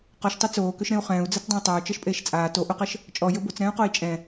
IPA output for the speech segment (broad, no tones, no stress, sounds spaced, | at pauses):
q ɔ ʃ tˤ ø t͡s oː k ø ʃ ɾ ẽ u̯ χ ɛ̃ː u̯ d͡z ɜ t͡s dˤ ã u̯ tˤ ɜ u̯ t͡ʃ ɜ ʃ pʼ eː ʃ t͡sʼ aː t o ʔ o q ɜ ʃ | t͡ʃʼ ɔ j ɘ b o t͡s ɾ ɛ̃ː u̯ q o i̯ t͡ʃʼ ɛ̃